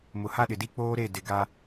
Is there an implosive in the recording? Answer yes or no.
yes